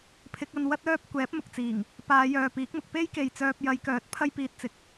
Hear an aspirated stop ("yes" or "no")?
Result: yes